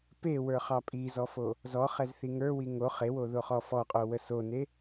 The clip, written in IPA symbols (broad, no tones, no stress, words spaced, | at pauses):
pewə˞χɑ pʼizɔfo | zɔχɛzθi ŋə˞wi ŋo χewoðoχɔ fɔqʼowə sone